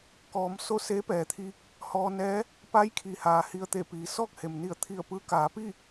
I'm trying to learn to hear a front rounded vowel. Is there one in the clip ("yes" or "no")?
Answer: no